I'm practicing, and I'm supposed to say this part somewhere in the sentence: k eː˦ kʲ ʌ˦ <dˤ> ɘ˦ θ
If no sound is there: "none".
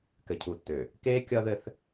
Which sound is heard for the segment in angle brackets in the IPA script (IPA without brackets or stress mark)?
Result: ð